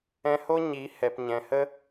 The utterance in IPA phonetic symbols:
ɛ̃˧ h o˦ ɲ i˨˦ h ɛ˨ p ɲ ɛ̃˨ h ə˦

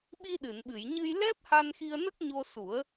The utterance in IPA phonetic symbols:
ɓ i˧ ɗ ɨ˨˩˨ n ɓ ɨ˨˩˨ j ɲ ɨ˧ j l ɛ˦˥ p̚ h a˧ n x i˧ ə̯ n ə˦˥ k̚ ɲ o˧ s u˨˩˦ ə̯

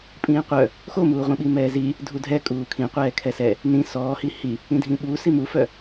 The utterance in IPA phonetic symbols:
pʼ ĩː qʷ œ | x o m uː ʁʷ ĩ ɓ i m ɛː z i | dʱ u dʱ ɛ kʼ uː kʰ ĩ qʷ ɛː kʰ ɛ s ɛ | n ĩ s ɔː h i h i | ĩ dʱ ĩ ɓ u s i m u f œ

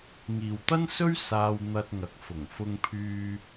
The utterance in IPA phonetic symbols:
ŋ iː˨ w t̪ ɐ˥ n s ɵ˥ ɥ s aː˧ w n̪ ɐ˧ t̚ ŋ ɐ˨ k̚ f ʊ˨˩ ŋ f ʊ˧ ŋ pʰ yː˧

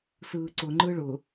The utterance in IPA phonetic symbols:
s ɯː ǀ ʊ ŋ͡ǃ ɯ ɭ ʊ

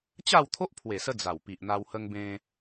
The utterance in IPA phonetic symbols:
t͡ɕ a˥˧ w t̪ʰ o˦ ʔ pʰ w e˨˩ s ə˧ d͡z a˨˩ w p i˨ ʔ n̪ a˧ w h ə˧ ŋ b ẽ˧

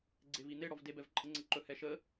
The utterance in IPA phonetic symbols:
ɡ͡ǀ e v i n̪ e ɽ ɔ v d e b ɛ v ǃʼ ə ŋ͡ǀ ə ǃ ɵ h ɛ ʃ ə

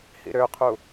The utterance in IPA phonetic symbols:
h ḭ ɾ ø qʰ u

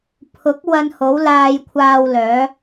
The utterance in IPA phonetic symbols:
pʰ ʊ˨˥ k̚ w ɐ˧ n h o˨˥ w l aː˧ j kʷʰ aː˧ w l œː˨˧

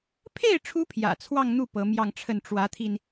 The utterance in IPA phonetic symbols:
pʰ e˥˩ ɪ̯ ʈ͡ʂʰ u˧˥ pʰ j ä̰˨˩ t͡sʰ w ɑ˥˧ ŋ n̪ u˥˩ p ɤ˧˥ m j ɑ˥˧ ŋ ʈ͡ʂʰ ə˥˩ n ʈ͡ʂ w ä˧˥ t̪ʰ i˧ n

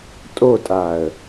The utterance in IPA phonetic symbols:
tʼ o tʼ a ə̯

